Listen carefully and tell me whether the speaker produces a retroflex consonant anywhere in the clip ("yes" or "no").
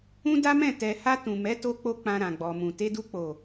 no